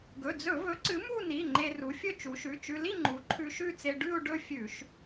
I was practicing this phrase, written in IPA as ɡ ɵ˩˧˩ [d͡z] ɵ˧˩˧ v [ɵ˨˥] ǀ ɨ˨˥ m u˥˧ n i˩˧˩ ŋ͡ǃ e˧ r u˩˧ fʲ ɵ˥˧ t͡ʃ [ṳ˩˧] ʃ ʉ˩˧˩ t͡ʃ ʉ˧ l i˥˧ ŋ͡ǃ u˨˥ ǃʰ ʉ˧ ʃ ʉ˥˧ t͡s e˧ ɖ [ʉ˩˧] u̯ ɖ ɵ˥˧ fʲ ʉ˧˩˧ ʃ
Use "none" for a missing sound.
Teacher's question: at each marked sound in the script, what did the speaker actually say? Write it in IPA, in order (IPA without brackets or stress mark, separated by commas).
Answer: d͡z, ɵ˨˥, u˩˧, ʉ˥˧